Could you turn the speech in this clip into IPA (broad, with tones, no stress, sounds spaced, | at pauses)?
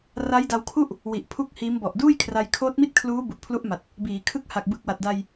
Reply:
r a˦˥ j d a˧ w kʰ u˥˩ ʔ | w i˨˩ ʔ pʰ u˥˩ k̚ h iː˦˥ m b ɔ˨˩ ʔ d uː˥˩ j kʰ r a˧ j kʰ oː˦˥ t̚ m i˥˩ t̚ kʰ l uː˦˥ b u˨˩ ʔ pʰ l u˦˥ ʔ m a˨˩ t̚ | b iː˩˦ kʰ ɯ˦˥ k̚ h a˨˩ k̚ b ɯ˨˩ k̚ w a˨˩ t̚ d a˧ j